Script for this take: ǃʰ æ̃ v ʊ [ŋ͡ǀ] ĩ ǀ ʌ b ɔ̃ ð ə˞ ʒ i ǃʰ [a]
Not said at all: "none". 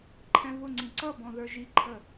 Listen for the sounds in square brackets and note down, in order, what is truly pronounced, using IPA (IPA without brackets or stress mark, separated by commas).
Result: ŋ͡ǀ, ə